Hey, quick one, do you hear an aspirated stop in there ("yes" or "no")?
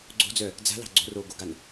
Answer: no